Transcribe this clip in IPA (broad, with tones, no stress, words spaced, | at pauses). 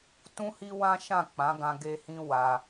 tũ˦ hi˦ wã˦ʃã˦˨k͡pã˨˦ɡã˧ ɡe˧hĩ˧ wa˧